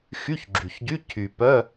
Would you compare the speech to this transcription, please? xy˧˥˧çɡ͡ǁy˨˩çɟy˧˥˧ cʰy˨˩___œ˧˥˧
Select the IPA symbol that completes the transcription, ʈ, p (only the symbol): p